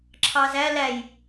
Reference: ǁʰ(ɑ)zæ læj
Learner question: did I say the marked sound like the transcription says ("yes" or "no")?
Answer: yes